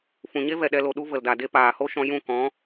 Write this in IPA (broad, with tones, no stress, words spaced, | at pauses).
fũ˨ɲe˦ vɛ˨ɗɛ˧lo˨ ɗu˦ və˨lda˨de˦ paː˨ho˦ʃɔ̃˧ jũ˦˨ kɔ̃˨˦